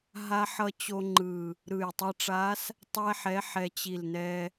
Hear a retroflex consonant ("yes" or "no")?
yes